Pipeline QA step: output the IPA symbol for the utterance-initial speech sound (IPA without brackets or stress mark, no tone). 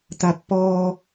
t̪